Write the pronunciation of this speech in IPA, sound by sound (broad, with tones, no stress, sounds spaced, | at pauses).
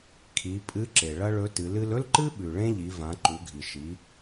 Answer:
kʰ i˩˧ pʼ ɨ˧˥ ǁ e˩ ɭ ɐ˥ ɭ ɵ˧˥ t ɨ˩˧ l ɨ˧ l ɵ˥ l ǃ ɨ˥ ɓ ʉ˩ ɭ ẽ˥ ʎ i˩˧ v ã˩˧ ǃ u˩˧ ɡʱ i˩ ʃ i˩˧